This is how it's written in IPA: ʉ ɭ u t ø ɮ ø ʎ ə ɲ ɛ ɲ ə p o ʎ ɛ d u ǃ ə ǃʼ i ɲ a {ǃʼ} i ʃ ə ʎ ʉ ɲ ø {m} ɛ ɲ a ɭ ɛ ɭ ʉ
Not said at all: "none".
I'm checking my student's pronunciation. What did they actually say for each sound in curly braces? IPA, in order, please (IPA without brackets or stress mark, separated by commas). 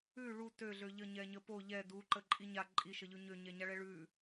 ǃʼ, ɲ